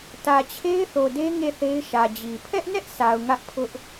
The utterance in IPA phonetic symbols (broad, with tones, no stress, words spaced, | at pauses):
tä˨t͡ɕʰe˦ɪ̯θo˨de˦ ŋe˦˨θe˦ɪ̯ʃä˨d͡ʑi˨ pʰɛ˦ʔnɛ˦ʔsʰa˨ʊ̯ ŋä˦ʔpʰʊ˦ʔ